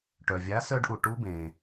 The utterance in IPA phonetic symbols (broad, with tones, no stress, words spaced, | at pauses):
ʈœ˩ vʲa˨˥ sœ˦˥ɖʔu˩ʈu˦˥bẽː˩